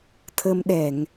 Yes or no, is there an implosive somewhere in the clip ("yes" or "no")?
yes